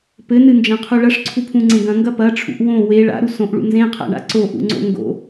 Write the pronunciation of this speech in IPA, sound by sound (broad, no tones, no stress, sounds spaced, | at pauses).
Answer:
p ɘ n ɨ n d͡ʒ ɐ̃ qʰ u ɭ ɐ ʂ ǀʰ u pʰ ũ ŋ͡ǀ ẽ ɡ ɐ̃ ŋ ɡ ɐ p ɐ ʈ͡ʂʰ ṵ ʔ w õ w e ɭ a̰ ɾ u s õ ʔ ɭ ṵ n z ẽ qʰ a̰ ɳ a̰ ǀ o ʔ ṵ ŋ͡ǀ o̰ ŋ ɡ o̰